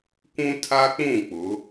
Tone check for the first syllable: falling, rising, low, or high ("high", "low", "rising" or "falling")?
high